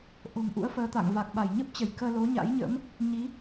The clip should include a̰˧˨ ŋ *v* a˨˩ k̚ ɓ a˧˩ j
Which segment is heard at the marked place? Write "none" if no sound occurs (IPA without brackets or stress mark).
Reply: v